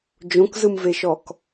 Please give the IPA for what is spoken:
d͡ʒ õ k z ɯ m v e ʃ ɔ k

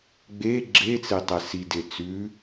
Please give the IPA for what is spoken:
ɡ͡b e ɡ͡ǁ e t͡s e tˤ ɛ s i d e t͡s ʉ

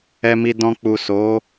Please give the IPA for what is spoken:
ɛ˧ m i˧ d ɔ̃˧ k͡p u˨ s o˨˦

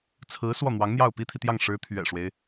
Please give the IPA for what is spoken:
t͡sʰ ɹ̩˧˥ s w ɔ˥˩ n̪ w ɑ˧˥ ŋ n̪ j ɑ˥˩ ʊ̯ p i˥ t̪ʰ i˨ t̪ j ɑ˥˩ ŋ ʂ ɻ̩˧˥ t̪ʰ ɥ ɛ̰˨˩ ʂ w e˦ ɪ̯

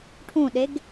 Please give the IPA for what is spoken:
ʈʰ ũ ɗ e ɡ

